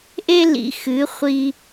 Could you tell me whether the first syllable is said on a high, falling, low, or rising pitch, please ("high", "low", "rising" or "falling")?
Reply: high